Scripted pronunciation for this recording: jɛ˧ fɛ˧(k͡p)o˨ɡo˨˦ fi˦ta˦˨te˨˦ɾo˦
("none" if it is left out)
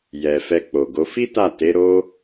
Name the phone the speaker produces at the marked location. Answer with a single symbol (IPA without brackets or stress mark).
k͡p